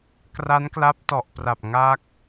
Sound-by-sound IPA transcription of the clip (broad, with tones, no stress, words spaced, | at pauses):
kra˦˥nkla˦˥p̚tɔ˨˩ʔpra˨˩p̚ ŋa˥˩k̚